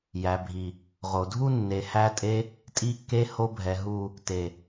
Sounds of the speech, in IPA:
j æ˨ bʱ i˨ | ʁ o˨ dʱ u˦ nː e˨ h æ˧ tʼ e˧ | tʼ i˧ kː e˧ h o˧ bʱ ɛ˨ ɦ u˨ | t e˨

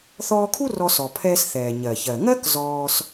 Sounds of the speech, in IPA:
θ ɔː˧ kʰ u˥ r ɔ˧ s ɔ˩ pʰ ɛː˧ s θ ɛː˩ ɲ ɜ˩ ç ɜ˩ ŋ ɜ˥ k z ɔː˧ s

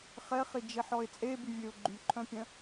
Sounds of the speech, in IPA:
χ ɛ χ i d͡ʒ e ħ ɔ ɪ̯ t͡sʼ e b y vʲ ø ʊ̯ ɡ͡ǃ y ǃʰ œ̃ pʲ œ̃

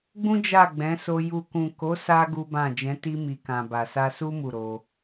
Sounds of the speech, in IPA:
ɡ͡b ũ˦ d͡ʒ a˦˨ ɡ͡b ɛ̃˨˦ s o˧ j u˨ k ũ˨ k o˨˦ s a˧ ɡ u˦ b ã˦˨ d͡ʒ ɛ̃˨˦ t i˧ m i˨ k ã˨ b a˨ s a˧ s u˦ m u˦˨ ɾ o˧

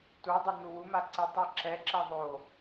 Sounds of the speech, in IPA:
t u dˤ ɯ n̪ u w u m a ǀ i tˤ i ǁ ɛ ǁ ɛ ðˤ o

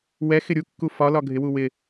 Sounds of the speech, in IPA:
w ɛ x ɪ ɾʲ u kː u f ɒ l ɒ ɡʱ ɪ w u w ɪ

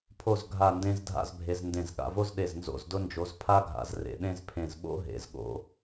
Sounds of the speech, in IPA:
pʰ o˥˧ z ɡʱ a˥˧ n d ẽ˥ z dʱ a̰˥˧ z bʱ e˧ z n d ẽ˧˩ z ɠ a̰˧ v o˥ z ɗ e˧˩ z n z o̰˧˩ z d ʊ˧ n d͡ʒ o˩˧ z pʰ a˥ ɡʱ a̰˩˧ z r ḛ˩˧ ɗ ẽ˥ z pʰ ẽ˧˩ z ɓ o̰˥ ɦ ḛ˩˧ z ɠ o̰˧

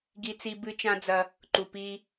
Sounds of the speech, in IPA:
ɡ i˦ t͡s i˦ b ɨ˦ t͡ʃ ã˦ d͡z ɐ˦ | ǃ u˨ p i˦

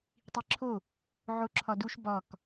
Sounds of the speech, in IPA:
tˤ i ǁʰ o | ʕ o ǁʰ ɒ d u ʃ b ɒ k

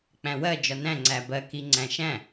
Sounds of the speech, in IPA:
k͡p æ̃ w ɜ d͡ʒ ɒ n æ̃ ŋ͡ǀ æ b ɜ k i ŋ͡ǀ æ̃ ʃ æ̃

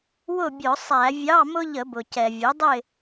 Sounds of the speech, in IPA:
w ʊ˥˨ bʲ ʊ˧˩˧ sˤ æ˧˩˧ vʲ ɑ˧˥˧ m ʊ˥ ʎ ə˧˩˧ b ʊ˩ c ɛ˩ vʲ ʊ˩˥ dˤ ɪ˥˨

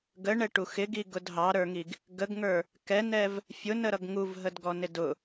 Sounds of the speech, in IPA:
ɡ ə ɳ ɛ ʈ u x ɪ ɡ i ɡ ʊ d ɦ ɑ ɾ ə˞ ŋ i ɡ | ɡ ə ɡ ŋ ə˞ | k ɛ n ɛ v | fʲ ʊ n ə ɾ ʌ ɡ ŋ u v ɦ ə d ɡ ɔ n ɪ d ʊ

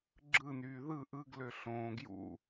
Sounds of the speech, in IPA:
ɡ͡ǁ ɯ n yː ð ɯ ʔ ɯ ɡ l ø ɬ õː ɡ j ṵ

